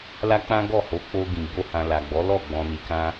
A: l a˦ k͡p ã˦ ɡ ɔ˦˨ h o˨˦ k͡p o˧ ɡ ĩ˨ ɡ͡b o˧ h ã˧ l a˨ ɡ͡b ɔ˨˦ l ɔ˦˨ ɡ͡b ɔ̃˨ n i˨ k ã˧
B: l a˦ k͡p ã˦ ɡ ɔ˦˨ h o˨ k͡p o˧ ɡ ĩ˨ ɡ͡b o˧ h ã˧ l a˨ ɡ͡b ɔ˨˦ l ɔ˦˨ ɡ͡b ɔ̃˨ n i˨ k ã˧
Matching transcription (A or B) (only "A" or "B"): A